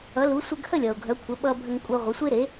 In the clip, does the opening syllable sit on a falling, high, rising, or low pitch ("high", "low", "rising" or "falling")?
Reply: rising